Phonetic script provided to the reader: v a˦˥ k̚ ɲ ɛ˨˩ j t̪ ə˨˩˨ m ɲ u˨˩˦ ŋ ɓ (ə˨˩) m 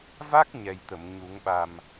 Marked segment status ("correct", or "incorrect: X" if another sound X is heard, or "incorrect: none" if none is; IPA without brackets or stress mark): incorrect: a˨˩